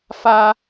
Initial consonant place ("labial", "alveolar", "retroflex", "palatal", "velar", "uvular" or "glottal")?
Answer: labial